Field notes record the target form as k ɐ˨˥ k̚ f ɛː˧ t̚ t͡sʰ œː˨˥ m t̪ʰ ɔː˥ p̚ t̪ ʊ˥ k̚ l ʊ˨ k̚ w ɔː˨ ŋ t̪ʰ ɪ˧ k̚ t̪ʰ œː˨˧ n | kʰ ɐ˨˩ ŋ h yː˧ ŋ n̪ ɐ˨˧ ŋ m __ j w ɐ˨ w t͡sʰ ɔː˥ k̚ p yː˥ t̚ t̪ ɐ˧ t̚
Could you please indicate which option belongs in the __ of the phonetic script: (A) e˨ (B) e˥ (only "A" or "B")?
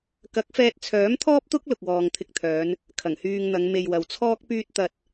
A